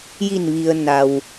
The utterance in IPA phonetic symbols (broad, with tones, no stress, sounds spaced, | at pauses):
j i˧˩ n ʋ i˩ ə̯ n a˩ w